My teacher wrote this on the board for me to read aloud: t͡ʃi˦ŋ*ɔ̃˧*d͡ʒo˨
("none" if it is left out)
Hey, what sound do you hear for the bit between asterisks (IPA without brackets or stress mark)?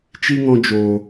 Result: ɔ̃˧